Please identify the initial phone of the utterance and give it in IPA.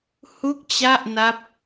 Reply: h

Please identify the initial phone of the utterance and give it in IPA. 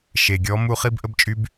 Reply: ʃ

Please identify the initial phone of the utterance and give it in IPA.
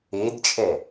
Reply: e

